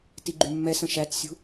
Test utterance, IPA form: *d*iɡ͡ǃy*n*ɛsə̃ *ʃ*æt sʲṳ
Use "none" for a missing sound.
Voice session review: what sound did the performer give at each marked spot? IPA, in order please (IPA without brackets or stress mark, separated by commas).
t, mː, ʃ